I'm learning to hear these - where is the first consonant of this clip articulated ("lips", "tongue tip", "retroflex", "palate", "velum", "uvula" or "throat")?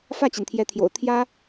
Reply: lips